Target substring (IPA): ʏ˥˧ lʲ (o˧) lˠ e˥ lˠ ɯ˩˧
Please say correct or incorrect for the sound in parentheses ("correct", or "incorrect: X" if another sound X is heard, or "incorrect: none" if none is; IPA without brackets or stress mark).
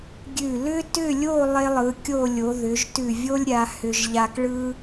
incorrect: o˥˧